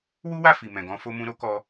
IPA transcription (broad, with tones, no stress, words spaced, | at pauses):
wu˦wa˦˨ fi˨mɛ̃˨ɡɔ̃˧ fo˧mũ˧ ɾo˦kɔ˧